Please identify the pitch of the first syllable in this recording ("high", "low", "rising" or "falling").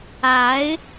rising